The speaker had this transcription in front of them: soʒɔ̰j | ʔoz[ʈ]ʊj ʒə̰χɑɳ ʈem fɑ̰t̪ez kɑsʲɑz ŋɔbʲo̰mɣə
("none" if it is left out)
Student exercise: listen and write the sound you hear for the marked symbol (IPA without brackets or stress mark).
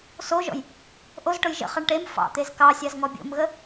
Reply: ʈ